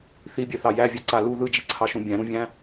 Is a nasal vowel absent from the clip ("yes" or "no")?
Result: no